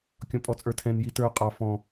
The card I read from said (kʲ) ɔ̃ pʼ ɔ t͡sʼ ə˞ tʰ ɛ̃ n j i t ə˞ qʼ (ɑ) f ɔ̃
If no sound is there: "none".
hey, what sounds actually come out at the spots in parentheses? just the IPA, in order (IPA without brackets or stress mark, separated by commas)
kʲ, ɑ